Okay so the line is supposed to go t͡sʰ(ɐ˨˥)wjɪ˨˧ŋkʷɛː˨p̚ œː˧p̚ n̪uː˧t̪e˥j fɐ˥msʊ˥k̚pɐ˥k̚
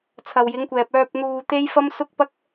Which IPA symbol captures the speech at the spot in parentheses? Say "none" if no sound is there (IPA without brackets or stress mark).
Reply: ɐ˨